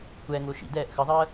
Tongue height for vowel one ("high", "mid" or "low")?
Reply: mid